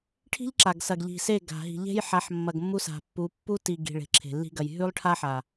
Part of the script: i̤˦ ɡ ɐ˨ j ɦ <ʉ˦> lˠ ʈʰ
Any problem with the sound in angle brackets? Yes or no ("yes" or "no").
no